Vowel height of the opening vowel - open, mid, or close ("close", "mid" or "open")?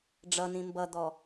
mid